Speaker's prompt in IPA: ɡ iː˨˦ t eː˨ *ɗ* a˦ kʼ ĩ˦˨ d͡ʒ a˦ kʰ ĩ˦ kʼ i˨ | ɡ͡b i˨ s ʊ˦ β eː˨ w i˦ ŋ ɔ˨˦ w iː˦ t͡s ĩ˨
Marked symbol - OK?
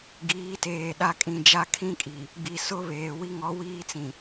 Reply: yes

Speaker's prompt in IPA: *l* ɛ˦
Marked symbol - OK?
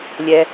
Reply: no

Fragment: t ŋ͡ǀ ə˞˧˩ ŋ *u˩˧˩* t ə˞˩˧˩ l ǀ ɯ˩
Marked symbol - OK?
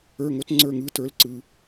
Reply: no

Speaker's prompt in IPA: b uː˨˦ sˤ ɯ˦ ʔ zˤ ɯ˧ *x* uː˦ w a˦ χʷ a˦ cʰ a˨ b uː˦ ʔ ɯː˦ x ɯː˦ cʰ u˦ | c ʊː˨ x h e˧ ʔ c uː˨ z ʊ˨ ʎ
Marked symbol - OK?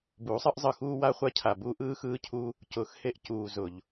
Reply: yes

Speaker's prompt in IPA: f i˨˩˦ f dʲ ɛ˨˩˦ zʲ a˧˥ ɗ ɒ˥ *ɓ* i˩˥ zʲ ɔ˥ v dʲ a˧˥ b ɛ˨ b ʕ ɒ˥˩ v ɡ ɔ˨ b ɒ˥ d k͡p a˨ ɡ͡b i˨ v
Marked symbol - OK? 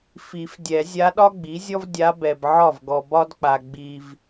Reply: no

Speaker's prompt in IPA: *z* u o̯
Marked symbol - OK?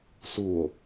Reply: no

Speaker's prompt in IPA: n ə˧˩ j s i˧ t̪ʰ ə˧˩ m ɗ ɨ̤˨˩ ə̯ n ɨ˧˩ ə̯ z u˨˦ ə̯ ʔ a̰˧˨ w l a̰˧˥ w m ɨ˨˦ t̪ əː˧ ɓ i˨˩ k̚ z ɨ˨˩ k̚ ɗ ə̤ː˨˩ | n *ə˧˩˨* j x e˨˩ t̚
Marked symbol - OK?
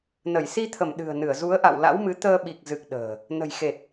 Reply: no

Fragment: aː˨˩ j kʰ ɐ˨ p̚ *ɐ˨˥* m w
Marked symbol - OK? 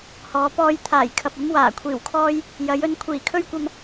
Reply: no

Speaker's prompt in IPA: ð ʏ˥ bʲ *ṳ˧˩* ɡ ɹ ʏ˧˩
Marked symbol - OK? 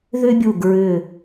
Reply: no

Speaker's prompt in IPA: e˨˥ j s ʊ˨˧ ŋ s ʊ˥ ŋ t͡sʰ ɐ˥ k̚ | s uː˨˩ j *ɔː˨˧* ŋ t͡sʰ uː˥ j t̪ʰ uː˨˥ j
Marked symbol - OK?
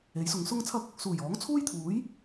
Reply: no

